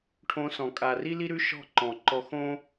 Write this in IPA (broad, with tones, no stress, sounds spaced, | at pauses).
ʈʰ õ˧ s ɔ̃˨ kʼ a˨ r i˦ l i˦ ɾ ʉ˦ ʃ ɔ̤˦˨ ǃ ɔ̃˨ ǃ ɔ˧ x õ˦